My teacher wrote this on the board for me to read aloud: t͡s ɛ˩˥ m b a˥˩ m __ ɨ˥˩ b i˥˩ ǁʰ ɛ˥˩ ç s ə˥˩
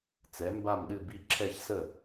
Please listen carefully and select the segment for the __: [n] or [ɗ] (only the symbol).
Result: ɗ